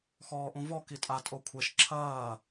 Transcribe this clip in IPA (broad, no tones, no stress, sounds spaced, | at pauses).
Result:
x ɔː ʔ ũ v ɔ k i tʼ a tʼ o kʷʰ e ʃ ǁʰ ɐː